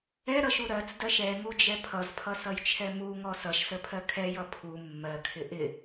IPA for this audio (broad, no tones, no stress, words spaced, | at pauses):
ɛɾʌʃu ɾɜt͡sdɜʃ ɛŋud͡ʒɛ pʰʌzpʰʌsʌjt͡ʃʰɛ muŋɔ sʌʃsəpʰɜ kʰɛjʌ pʰu mːɜkʰɪ ʔɪ